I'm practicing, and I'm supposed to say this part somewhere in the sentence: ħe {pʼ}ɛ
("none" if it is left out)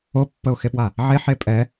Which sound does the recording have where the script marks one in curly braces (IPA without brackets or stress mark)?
pʼ